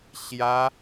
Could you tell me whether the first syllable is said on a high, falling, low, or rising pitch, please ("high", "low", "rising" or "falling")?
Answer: high